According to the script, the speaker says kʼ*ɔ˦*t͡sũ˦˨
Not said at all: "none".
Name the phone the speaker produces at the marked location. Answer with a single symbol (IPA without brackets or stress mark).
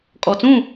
ɔ˨